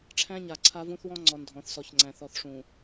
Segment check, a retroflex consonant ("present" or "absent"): present